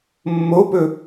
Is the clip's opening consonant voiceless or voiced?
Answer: voiced